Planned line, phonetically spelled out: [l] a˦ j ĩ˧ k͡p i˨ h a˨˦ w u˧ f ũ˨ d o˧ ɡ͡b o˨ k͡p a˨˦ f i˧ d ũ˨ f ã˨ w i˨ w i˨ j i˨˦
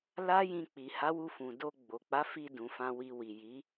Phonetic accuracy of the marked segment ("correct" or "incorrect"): correct